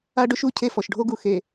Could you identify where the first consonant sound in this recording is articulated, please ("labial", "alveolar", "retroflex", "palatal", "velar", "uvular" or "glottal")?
retroflex